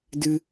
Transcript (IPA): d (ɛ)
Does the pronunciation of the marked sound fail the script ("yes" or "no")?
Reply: yes